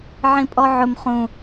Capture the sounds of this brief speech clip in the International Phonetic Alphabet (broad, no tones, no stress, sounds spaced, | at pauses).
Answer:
ʕ ĩ pʼ ɔ ʕ ʊ m χ ũ